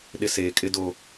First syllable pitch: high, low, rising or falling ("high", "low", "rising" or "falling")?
high